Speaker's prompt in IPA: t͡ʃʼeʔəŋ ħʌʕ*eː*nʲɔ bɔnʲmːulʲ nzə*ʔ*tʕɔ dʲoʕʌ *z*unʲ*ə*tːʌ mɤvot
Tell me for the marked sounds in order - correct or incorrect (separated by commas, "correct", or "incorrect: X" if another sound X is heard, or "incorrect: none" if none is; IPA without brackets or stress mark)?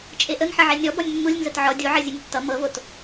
incorrect: e, incorrect: none, incorrect: zʲ, correct